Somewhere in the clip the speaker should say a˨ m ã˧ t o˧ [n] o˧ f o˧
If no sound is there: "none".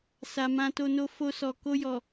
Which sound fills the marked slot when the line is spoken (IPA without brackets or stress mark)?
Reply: n